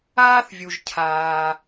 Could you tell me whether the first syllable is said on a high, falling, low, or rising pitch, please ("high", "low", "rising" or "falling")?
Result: high